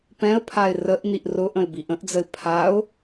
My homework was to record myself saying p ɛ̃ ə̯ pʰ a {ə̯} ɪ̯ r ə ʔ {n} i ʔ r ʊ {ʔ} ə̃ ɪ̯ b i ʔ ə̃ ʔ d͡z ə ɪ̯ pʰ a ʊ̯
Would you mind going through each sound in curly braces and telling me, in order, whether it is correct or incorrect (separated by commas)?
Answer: incorrect, correct, correct